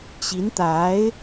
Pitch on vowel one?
rising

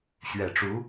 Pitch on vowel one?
low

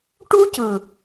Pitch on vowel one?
high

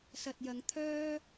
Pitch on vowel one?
low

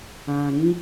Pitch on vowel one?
low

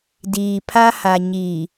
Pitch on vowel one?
low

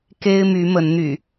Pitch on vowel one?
high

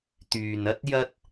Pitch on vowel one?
low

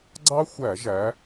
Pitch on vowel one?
high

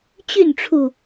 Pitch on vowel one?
falling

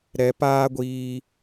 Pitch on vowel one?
rising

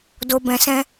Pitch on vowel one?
low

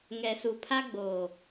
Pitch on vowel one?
low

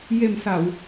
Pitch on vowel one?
low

